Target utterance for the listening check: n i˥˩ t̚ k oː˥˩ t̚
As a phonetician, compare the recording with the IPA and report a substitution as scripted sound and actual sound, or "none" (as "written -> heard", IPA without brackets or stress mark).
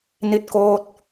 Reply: none